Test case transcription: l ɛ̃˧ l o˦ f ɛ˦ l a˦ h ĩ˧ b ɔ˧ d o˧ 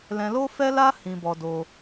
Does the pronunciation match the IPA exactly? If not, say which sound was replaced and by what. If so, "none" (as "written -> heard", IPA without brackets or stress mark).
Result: none